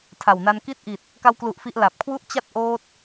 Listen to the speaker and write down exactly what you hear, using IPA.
tʰ a˨˩ w n a˧ n k i˥˩ t̚ ʔ i˨˩ t̚ | k a˧ w k l u˨˩ ʔ f i˦˥ ʔ l a˨˩ p̚ kʰ w u˥˩ ʔ t͡ɕ a˥˩ t̚ ʔ oː˦˥ t̚

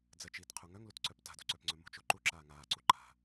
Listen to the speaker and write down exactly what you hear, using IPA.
d͡z ə t͡ʃ iː t qʰ u ŋ œ ŋ l u t ǀ œ p t a̤ d ṳ ǀ œ p ŋ͡ǀ œ m ṳ t͡ʃ o ǃ u ǁ aː ŋ aː ǀ u ǃ a̤

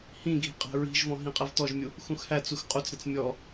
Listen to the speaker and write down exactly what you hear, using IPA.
h ĩ ɡʱ i̤ qʼ æ̤ ɹ i̤ ʒ v ɔ̃ ɦ ĩ qʼ ɛ v t ɔ ʒ mʲ u | x ũ x h æ t͡s u x qʼ u t͡s ɾ ɪ t͡s mʲ ɔ

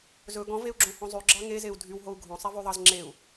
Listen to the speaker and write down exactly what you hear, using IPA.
z ɵ ɡ ɔ̃ v e u̯ ɡ͡ǁ õ h õ zˤ ʉ ɡ͡ǁ ɑ ŋ e z e u̯ dʱ y w ɦ o u̯ ɡʱ õ sˤ ɛ v ʉ ðˤ ɑ z ŋ͡ǁ e u̯

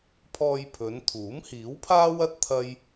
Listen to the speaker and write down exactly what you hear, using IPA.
pʰ ɔː˧ j pʰ ɵ˨˧ n t̪ʰ uː˨˥ m h iː˨˥ w pʰ aː˥ w ɐ˥ t̚ t̪ʰ ɐ˥ j

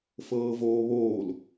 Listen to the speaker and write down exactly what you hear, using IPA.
f ɤː v oː β oː l

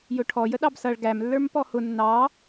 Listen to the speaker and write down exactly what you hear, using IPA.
j ʊ ʈʰ ɔ j ə ɗ ɑ b s ʌ ɭ ɡ æ m lː ə˞ m p ɔ h ʊ nː ɑ

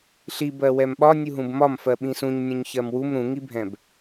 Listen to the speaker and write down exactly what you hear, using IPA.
ɬ i b ɜ w ɛ m ɓ ɒ nʲ u ɦ ũ b m ɒ m f ɜ ɓ ĩ s ũ ɲ nʲ ũ ɲ ç ɜ m w u m ɾ ũ ŋ i bʱ ɛ̃ b

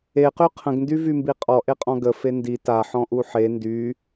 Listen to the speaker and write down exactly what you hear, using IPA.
e q y qʰ ə̃ ɡ n d y v y m b i qʼ ɔ ʔ e qʼ ɔ̃ ɡ ə f e n d i t a ħ ɔ̃ ʔ u ħ e n d y

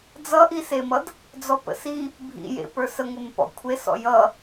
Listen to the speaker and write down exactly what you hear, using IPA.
d͡z ʌ ʔ i s e m ʌ d | d͡z ɔ p ə̰ s i | bʱ ḭ j ḛ p ə˞ s ə ŋʷ e m p ɔ̰ kʷʰ e s ɔ̰ j ʌ

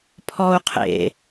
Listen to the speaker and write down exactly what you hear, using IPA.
pʰ ɔ u̯ qʰ ḛ

